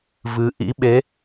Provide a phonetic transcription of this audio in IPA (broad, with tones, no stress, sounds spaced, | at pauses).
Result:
v ɨ˨˦ ʔ ḭ˧˥ ɓ e˨˦